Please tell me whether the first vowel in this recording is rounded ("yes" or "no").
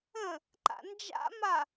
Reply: no